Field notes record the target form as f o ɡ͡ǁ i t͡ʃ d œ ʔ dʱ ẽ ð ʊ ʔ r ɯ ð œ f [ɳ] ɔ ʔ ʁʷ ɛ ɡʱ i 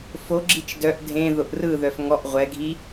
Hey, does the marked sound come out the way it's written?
no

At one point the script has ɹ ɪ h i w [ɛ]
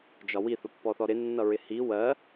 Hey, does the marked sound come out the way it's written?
no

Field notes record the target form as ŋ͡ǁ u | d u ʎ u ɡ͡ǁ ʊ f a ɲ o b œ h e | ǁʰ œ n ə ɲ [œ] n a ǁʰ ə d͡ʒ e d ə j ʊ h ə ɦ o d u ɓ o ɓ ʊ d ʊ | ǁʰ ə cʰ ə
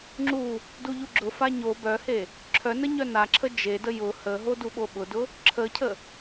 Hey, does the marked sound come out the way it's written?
yes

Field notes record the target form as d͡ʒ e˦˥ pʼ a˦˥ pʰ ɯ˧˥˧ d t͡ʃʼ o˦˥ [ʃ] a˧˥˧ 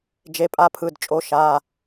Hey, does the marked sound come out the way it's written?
yes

